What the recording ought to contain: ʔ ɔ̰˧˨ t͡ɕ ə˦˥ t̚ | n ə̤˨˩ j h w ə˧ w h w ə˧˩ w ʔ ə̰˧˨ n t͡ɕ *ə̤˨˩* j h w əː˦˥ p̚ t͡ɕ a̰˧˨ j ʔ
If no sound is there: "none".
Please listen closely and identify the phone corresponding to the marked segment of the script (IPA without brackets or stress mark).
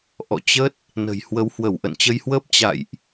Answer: ə˧